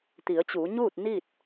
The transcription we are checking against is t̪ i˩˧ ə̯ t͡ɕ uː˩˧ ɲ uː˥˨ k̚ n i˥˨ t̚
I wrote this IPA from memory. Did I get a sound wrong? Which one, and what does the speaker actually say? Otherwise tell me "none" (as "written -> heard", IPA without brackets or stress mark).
k̚ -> t̚